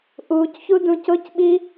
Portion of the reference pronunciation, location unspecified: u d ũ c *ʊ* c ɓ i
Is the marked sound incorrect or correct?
correct